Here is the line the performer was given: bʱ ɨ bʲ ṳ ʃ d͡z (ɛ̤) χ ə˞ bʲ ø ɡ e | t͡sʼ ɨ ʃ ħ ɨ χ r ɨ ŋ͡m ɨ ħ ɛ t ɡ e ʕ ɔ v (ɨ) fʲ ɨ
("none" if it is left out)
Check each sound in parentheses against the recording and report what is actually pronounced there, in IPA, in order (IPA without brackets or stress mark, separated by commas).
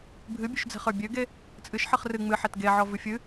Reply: ɛ̤, ɨ